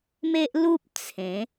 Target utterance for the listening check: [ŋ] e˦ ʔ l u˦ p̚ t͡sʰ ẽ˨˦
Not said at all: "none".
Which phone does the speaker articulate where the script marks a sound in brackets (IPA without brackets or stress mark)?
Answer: m